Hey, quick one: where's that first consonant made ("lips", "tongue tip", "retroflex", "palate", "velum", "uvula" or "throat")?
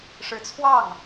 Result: retroflex